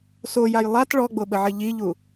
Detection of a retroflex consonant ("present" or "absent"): present